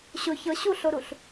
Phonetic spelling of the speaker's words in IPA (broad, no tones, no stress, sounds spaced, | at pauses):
ɕ ʊ ç ɤ ɕ u ɬ o ɾ u ɬ